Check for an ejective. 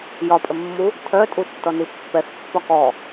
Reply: present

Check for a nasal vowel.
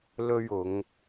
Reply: absent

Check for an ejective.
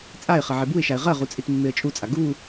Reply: present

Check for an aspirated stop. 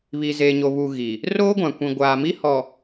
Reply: absent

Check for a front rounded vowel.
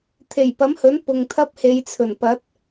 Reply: absent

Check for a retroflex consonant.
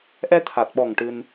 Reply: present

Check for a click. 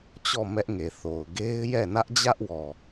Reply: absent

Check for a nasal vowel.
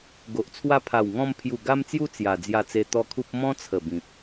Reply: present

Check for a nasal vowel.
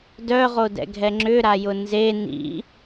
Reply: absent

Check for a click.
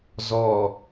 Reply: absent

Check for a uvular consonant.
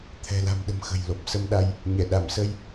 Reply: absent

